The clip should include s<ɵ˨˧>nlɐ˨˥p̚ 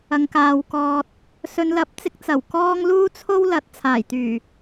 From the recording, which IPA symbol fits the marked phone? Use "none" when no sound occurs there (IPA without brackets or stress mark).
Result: ɵ˨˧